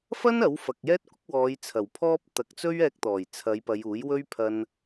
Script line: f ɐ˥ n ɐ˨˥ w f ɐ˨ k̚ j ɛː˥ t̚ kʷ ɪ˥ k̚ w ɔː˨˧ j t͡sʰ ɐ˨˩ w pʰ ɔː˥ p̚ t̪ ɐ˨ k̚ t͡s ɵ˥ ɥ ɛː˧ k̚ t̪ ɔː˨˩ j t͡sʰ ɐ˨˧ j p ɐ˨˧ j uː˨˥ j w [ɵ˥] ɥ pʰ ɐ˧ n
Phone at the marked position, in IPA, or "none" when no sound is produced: ɵ˥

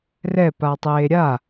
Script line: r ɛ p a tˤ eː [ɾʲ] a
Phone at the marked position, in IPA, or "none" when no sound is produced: ɾʲ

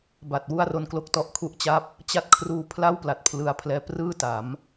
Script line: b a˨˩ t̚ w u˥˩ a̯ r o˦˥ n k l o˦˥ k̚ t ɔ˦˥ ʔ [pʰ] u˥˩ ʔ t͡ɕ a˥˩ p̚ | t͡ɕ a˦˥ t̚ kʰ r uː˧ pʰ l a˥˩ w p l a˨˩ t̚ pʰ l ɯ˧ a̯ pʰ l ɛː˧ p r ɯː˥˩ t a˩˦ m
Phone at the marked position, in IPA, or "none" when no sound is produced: kʰ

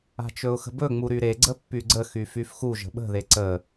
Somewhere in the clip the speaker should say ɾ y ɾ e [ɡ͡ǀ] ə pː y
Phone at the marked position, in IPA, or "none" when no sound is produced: ɡ͡ǀ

